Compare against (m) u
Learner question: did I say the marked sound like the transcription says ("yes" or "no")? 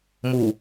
yes